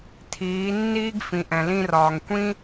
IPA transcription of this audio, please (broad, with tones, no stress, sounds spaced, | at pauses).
tʰ iː˨˦ nː iː˦ ɡ f ĩ˨ ʔ ɛ̃˨ l ĩ˧ r ɒː˨ ŋ kʷ ĩ˦